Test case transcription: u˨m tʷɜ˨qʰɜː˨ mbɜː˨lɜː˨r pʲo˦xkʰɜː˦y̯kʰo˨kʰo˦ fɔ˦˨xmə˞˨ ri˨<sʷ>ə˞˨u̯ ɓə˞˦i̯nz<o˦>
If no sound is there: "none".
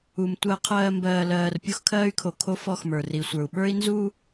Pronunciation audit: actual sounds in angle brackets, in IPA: sʷ, u˦

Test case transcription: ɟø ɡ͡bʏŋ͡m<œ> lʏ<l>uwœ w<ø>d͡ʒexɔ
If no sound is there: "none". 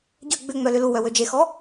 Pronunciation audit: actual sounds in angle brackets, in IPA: œ, l, ø

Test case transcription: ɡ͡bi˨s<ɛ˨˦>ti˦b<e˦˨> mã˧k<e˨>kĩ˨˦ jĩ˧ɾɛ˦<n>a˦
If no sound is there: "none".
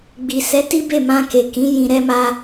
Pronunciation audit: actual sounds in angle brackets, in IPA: ɛ˨˦, e˦˨, e˨, m

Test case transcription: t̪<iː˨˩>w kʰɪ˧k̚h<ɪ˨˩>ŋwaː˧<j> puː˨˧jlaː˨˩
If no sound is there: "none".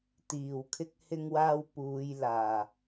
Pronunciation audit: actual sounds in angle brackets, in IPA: iː˨˩, ɪ˧, w

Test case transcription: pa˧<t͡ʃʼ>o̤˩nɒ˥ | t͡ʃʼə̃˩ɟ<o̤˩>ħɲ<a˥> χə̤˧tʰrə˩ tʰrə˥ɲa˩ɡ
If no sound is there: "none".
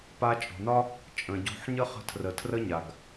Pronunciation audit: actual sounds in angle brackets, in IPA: t͡ʃʼ, o̤˧, ə˥

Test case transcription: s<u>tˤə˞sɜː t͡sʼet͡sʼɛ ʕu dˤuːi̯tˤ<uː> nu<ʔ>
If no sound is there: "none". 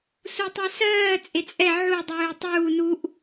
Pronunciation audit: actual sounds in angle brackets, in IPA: u, uː, ʔ

